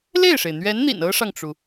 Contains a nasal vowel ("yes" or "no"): no